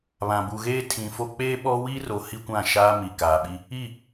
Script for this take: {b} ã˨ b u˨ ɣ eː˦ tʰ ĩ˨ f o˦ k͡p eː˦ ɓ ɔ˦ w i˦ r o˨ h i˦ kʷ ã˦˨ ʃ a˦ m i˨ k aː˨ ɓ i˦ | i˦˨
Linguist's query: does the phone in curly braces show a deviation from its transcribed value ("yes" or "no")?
yes